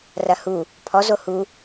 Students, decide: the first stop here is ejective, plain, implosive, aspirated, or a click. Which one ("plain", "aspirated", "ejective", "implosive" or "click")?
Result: aspirated